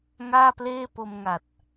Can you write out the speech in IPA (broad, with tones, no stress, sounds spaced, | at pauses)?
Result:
ŋ aː˥˩ p l eː˥˩ p o˧ m ŋ a˨˩ t̚